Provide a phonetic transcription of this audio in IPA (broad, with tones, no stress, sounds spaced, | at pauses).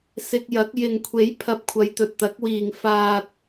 s ɪ˧ k̚ j ɐ˨˥ k̚ j ɪ˨ ŋ kʷʰ e˨˥ j pʰ ɐ˨ p̚ kʷʰ ɐ˨˧ j t̪ ɵ˨ t̚ t̪ ɐ˨˥ k̚ w iː˨ ŋ f aː˨ t̚